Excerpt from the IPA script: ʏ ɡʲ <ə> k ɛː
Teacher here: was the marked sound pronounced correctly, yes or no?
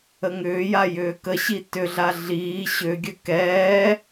yes